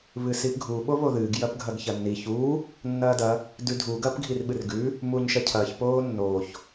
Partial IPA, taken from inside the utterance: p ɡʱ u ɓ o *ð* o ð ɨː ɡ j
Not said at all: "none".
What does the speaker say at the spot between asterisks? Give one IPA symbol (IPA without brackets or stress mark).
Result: β